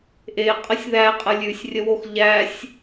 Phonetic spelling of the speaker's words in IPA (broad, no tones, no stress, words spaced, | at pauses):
ʔe qʼəsʲðæqʼə lʲʉsʲ rʲəwox ʎæsʲ